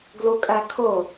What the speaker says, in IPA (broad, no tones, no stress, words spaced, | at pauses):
ɡlukʼækʰʊ